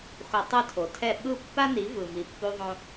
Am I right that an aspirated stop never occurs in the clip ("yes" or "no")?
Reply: no